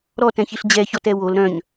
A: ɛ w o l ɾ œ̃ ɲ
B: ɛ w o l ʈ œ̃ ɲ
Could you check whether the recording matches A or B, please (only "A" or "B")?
A